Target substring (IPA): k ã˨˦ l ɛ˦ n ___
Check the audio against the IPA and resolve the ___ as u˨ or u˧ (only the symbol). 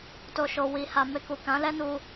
u˧